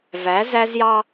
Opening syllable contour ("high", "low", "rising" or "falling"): rising